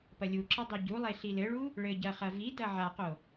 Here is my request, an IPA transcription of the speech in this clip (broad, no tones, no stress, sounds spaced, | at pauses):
p ɐ lʲ u ǁ ɐ dˤ i ɟ u lˠ e ɬ i l ɘ ɭ u | ɭ ɘ ɟ ɐ χ ɐ v i d ɐ ʕ a q o